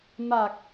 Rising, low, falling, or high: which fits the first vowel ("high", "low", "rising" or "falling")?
low